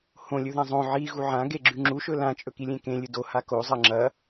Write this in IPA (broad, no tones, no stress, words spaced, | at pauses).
hõlʲɵðã zˤõ ʕiɣu ʕãɡeɡ͡ǁʉ ŋ͡ǁuʃɵ lãt͡ʃʼɵkilʲẽ kẽlʲɨ doha kozˤɐ ŋ͡ǁɐ